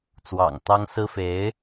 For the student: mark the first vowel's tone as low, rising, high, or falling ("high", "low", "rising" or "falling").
low